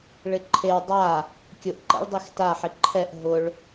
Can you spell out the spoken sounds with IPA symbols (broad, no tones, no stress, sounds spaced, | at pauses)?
ɭ ɪ ǃʰ e w dˤ a | kʲ ʊ ʔ ǃ ɛ̰ ɭ dˤ i x t a ħ ɪ ǃʰ ɛ ʔ ɦ ʊ ɭ